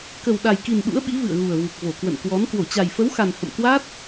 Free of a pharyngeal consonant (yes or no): yes